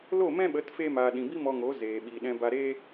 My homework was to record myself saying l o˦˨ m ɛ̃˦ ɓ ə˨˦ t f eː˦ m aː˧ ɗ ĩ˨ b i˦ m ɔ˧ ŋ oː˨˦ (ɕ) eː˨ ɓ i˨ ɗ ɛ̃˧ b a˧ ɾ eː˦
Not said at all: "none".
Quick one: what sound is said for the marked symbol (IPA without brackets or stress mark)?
z